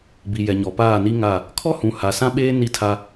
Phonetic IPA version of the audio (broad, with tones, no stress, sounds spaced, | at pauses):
b i˨ j ɛ˨ ɲ ɔ˨ p aː˦˨ n i˦ ŋ a˦˨ | kʰ ɔ˦ h ũ˨ h a˨ s ã˦ ɓ eː˦ n i˦ tʰ a˦